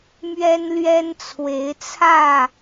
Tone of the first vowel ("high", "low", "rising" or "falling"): high